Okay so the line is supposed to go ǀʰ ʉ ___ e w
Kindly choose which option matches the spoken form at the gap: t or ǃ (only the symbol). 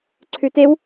t